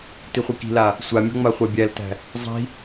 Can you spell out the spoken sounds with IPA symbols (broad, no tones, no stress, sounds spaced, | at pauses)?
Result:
t i χʷ i k i̤ l a | sʷ a mʲ ɔ̤ ŋ͡m a χʷ a bʲ æ l t æ̤ | zˤ i̤